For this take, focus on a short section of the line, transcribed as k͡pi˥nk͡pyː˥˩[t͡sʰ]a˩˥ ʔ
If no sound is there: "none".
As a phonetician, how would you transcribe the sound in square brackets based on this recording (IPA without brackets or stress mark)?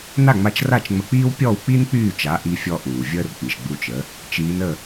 t͡ʃ